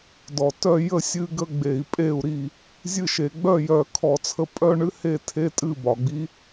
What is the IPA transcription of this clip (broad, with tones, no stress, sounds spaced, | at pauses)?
d ɔ˩ t œ˥˩ j ə˥˩ sʲ ɨ˥˧ ɡ ə˥˧ ɡ͡b e˧˩˧ i̯ pʼ e˥˩ u̯ ɾ i˥˩ | zʲ ɨ˥˩ ʃ e˧˩˧ ɡ͡b œ˥˩ j œ˧˩˧ kʰ ɔ˧˩˧ t͡sʰ ə˥˩ pʼ œ˥˧ ɳ ɨ˧˥˧ h e˥˩ tʰ e˧˥˧ tʼ ɨ˥˩ b ɒ˩ ɡ͡b i˧˥